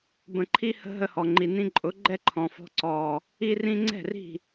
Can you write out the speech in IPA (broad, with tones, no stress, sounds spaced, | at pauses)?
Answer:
b ə̃˧ ǃʰ i˦ h ə̤˦ ɦ ə˧ h ɔ˨ ŋ͡ǃ i˨ n ĩ˧ ǃʼ ʊ˨˦ ɡ͡ǃ ɛ˦ ǃʰ ɔ̃˨ f ɔ̤˧ ǀ ɔː˨ | i˦ r ĩ˦ ŋ͡ǀ ɛ̤˦˨ r i̤˦˨